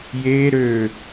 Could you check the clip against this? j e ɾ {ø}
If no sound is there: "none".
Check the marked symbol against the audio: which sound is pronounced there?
ø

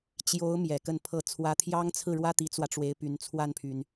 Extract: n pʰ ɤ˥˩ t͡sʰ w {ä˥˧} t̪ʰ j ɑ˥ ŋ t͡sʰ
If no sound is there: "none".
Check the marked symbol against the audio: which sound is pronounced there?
ä˥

